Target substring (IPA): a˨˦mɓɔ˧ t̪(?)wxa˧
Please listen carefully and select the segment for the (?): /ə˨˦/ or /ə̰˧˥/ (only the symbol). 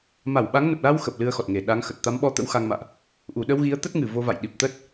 ə̰˧˥